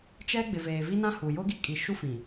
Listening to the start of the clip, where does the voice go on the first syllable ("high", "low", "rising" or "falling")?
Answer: high